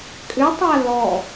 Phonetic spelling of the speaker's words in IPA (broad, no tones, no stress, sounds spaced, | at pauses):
kʼ ʏ tˤ a l ɔ